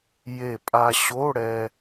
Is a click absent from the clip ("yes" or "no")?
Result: yes